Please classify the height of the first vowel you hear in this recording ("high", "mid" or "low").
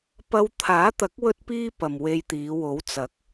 low